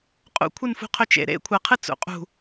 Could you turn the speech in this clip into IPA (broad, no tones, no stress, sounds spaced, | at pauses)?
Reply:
qʼ ṵ kʷʰ ɨ n f ṳ qʰ ɵ t͡ʃ ḛ ɾ ḛ kʷʰ a qʰ ɨ t͡s ṵ qʼ ṳ